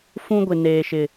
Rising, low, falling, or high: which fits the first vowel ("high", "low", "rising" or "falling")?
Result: high